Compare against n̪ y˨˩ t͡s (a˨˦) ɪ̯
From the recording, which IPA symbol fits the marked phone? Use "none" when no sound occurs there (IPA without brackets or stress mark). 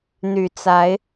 a˨˦